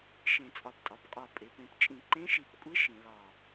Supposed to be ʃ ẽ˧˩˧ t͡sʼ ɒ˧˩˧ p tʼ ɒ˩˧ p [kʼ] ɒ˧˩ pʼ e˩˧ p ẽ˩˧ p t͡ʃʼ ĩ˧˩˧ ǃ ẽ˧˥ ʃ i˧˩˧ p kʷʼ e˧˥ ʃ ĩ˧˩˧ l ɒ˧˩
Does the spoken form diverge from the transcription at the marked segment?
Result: no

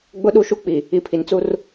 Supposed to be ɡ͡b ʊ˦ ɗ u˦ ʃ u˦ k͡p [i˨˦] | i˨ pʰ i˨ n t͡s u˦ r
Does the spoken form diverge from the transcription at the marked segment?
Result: yes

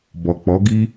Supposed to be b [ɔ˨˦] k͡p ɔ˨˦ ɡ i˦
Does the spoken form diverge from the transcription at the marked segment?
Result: yes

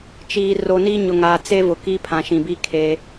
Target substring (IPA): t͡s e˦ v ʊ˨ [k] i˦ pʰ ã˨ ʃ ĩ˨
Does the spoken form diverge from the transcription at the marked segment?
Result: no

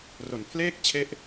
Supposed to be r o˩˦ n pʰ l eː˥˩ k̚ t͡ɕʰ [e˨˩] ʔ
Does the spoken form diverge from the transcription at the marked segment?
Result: yes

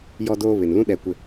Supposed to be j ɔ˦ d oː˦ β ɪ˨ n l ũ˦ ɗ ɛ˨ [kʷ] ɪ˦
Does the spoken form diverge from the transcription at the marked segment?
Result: no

